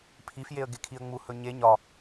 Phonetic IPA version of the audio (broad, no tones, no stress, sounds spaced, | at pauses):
pʰ i f j e ə̯ ɡ e kʰ i ə̯ ŋ͡m u h ɵ ɲ e ɲ ɒ